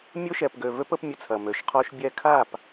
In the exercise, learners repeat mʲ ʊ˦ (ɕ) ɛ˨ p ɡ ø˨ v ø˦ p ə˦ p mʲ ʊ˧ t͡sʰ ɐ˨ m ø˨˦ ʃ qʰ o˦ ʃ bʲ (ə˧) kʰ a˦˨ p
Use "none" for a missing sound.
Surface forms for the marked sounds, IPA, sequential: ʃ, ɛ˧

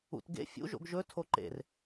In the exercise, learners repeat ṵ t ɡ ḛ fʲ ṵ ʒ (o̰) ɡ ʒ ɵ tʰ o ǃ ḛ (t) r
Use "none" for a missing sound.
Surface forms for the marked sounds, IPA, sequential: o̰, none

